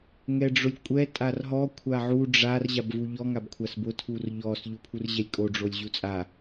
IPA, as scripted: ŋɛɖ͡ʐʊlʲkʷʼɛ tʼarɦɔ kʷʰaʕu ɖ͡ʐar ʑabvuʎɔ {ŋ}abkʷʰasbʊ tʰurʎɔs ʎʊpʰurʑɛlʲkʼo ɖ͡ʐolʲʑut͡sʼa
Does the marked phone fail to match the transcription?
no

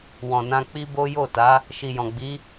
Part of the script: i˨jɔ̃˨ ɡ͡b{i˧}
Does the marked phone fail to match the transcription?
yes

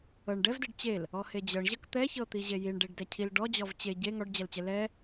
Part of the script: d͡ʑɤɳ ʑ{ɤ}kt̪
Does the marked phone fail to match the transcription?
no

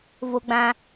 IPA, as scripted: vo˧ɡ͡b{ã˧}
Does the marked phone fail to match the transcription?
no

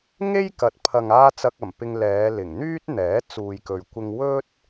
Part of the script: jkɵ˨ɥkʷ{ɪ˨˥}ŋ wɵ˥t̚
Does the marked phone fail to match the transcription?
yes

